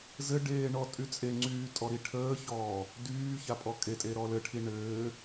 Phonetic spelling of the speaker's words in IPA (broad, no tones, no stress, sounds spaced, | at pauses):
z ɘ ɖ eː ɳ ɔ tʼ y t͡sʼ e ŋ͡ǀ yː tʼ ɔ ɾ i ʈʰ əː ç ɔː | d yː ç a pʼ ɔ kʼ e tʼ e ɾ ɔ l ɘ ʈʰ i ɳ ɘː